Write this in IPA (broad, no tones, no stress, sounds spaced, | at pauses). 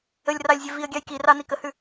ə lʲ r ɑ lʲ zʲ e v i ə̯ ɡʲ ɑ j k i r ɑ n i k ə h ʉ